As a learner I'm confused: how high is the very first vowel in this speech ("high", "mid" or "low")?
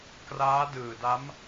low